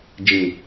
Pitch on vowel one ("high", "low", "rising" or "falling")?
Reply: low